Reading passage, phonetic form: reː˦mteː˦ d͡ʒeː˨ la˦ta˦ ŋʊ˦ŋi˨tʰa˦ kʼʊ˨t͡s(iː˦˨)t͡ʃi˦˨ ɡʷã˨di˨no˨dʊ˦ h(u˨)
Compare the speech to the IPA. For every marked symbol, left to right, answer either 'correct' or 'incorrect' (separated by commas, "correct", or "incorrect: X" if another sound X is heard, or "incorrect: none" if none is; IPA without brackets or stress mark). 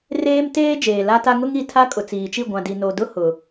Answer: incorrect: iː˨, incorrect: ʊ˨